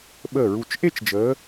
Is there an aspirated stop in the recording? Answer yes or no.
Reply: no